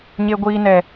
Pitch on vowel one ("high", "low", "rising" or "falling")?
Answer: high